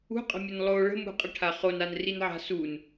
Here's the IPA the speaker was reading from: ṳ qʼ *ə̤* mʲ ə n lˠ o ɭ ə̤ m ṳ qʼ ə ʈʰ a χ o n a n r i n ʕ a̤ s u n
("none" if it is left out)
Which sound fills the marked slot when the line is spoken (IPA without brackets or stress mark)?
ə̤